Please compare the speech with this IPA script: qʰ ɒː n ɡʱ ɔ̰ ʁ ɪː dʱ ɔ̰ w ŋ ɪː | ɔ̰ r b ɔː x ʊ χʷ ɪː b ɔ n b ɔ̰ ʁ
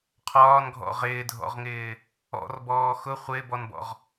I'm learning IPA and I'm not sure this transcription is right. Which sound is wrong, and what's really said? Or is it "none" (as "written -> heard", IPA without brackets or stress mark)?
w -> ʁ